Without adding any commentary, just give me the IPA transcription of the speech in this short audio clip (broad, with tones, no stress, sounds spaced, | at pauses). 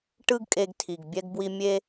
ʈ ɯ˦ ɡ kʼ e˧ ɡ tʰ i˨ ɡ bʲ ɛ˧ ɡ b w i˧ mʲ e˦